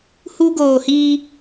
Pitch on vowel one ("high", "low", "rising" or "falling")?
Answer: high